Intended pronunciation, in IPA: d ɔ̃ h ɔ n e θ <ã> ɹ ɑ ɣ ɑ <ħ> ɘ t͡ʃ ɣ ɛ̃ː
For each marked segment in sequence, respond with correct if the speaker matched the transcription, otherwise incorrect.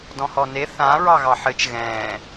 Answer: correct, correct

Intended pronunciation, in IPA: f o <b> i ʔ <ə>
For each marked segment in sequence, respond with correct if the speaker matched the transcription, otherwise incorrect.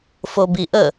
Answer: correct, correct

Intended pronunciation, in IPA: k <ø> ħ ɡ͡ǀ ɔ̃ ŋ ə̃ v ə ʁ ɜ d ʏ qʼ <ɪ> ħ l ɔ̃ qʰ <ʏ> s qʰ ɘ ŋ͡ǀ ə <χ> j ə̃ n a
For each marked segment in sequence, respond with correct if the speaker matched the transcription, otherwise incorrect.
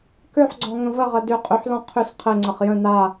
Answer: correct, incorrect, correct, correct

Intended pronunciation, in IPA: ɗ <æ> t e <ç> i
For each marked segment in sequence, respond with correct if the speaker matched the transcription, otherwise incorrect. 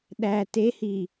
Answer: correct, incorrect

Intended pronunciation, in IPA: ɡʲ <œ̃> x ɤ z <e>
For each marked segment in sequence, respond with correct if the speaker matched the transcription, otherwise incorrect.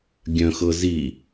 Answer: correct, incorrect

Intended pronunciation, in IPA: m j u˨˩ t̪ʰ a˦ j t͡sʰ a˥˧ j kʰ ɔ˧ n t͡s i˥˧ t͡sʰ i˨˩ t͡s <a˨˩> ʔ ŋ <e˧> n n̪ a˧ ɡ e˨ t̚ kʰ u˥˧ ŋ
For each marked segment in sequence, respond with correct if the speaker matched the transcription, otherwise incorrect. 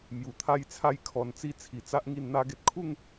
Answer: incorrect, incorrect

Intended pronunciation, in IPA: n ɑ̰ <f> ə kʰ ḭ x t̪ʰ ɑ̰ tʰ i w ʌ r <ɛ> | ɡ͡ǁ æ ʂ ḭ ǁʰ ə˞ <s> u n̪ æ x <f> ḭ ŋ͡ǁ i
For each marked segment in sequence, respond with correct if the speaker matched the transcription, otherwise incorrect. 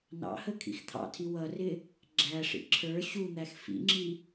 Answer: incorrect, incorrect, incorrect, correct

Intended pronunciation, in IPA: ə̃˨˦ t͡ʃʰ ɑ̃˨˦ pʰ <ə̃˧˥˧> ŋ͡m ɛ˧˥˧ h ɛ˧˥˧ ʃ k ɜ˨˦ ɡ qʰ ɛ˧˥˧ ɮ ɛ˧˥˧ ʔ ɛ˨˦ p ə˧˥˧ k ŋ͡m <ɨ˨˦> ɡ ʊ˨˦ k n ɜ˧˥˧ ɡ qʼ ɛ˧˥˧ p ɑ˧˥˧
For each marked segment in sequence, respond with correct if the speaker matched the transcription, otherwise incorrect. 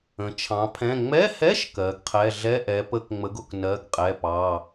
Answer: incorrect, incorrect

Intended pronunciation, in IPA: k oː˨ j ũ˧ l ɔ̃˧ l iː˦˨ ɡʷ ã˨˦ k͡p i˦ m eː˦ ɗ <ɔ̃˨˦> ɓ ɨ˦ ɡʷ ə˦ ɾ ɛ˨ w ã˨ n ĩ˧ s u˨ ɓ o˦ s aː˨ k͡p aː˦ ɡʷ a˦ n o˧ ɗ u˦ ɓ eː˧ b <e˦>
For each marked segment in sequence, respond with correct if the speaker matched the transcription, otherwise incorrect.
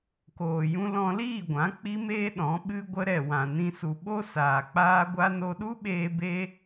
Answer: correct, correct

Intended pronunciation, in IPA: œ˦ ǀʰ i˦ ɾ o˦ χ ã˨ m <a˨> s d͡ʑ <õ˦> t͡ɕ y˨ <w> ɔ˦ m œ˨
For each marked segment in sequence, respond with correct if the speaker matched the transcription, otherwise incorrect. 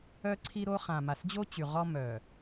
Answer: correct, incorrect, incorrect

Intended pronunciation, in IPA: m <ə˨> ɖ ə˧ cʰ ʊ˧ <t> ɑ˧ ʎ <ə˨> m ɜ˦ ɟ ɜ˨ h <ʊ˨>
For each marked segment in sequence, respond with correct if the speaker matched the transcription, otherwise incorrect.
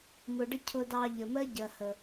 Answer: incorrect, incorrect, correct, incorrect

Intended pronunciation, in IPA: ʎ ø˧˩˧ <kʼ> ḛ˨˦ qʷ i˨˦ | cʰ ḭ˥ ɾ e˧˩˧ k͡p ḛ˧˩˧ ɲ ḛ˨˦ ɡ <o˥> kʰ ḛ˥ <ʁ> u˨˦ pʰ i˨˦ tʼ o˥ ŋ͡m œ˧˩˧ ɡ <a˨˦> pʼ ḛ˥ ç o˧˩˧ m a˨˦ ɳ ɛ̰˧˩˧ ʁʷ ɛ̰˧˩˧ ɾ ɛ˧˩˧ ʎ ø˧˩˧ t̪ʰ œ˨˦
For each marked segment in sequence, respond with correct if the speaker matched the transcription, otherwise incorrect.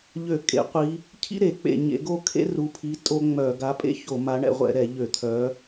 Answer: correct, correct, incorrect, correct

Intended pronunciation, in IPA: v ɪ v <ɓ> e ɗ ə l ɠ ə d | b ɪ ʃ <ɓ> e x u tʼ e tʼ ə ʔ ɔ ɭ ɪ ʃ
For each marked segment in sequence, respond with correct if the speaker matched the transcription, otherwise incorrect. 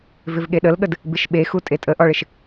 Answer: incorrect, correct

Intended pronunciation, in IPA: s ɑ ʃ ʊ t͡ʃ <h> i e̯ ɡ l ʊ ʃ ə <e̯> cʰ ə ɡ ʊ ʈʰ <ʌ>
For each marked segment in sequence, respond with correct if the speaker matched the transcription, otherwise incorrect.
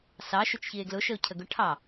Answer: incorrect, incorrect, incorrect

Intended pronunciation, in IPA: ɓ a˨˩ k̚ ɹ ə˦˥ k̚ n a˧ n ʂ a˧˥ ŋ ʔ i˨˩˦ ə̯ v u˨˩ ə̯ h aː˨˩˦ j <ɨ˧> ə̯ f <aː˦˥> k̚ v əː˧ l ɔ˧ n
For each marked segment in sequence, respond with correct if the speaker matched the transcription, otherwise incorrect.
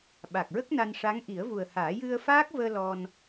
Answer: correct, correct

